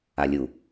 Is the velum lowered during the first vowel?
no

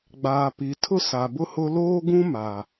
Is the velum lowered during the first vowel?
no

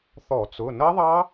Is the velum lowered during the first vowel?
no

